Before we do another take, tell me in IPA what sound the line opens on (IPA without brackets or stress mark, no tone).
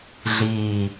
ɮ